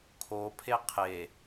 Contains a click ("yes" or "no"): no